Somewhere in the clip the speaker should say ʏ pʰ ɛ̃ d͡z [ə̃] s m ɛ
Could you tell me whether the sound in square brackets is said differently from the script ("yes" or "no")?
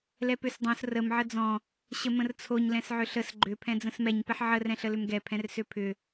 no